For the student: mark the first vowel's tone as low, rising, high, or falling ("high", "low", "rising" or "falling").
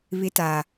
high